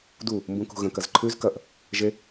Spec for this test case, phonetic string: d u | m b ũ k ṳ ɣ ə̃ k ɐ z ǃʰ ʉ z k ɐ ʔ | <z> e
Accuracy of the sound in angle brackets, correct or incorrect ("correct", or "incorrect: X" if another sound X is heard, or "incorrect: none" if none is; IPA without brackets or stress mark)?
incorrect: ʒ